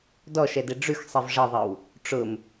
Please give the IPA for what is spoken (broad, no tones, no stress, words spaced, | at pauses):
dɔʃɛde ɖ͡ʐʉxsˤev ʐəðˤɘw | ʈ͡ʂʊm